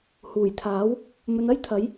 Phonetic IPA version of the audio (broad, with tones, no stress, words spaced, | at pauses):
huː˨˩jt̪ʰaː˨˥w | mɵ˨˧nɐ˥jt̪ʰɐ˨˥j